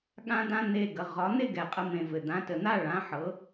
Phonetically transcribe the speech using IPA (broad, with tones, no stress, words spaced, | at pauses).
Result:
ɠã˥d̪ã˥ n̪e˥˧ɡə˨˦ ʁɒ˨˦n̪e˥˧ɡɛ˨qʼə˨˦ mẽ˨vɘ˨d̪ã˨˦ tə˨n̪a˥˧ ɭã˨˦ħɤ˨˦